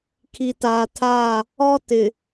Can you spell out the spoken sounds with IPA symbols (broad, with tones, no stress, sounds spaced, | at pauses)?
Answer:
kʰ i˨ t aː˨ tʰ aː˦˨ | ɔ˦ t ɪ˨